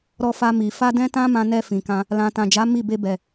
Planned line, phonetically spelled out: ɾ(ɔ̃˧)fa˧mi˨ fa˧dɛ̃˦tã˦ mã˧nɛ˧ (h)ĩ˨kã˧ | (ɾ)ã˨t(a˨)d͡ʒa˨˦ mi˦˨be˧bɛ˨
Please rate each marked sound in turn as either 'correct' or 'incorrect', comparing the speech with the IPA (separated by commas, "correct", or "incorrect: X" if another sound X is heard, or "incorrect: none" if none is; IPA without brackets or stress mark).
incorrect: ɔ˧, incorrect: f, incorrect: l, incorrect: ã˨